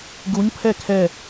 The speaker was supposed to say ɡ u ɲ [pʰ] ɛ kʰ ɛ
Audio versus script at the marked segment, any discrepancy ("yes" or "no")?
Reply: no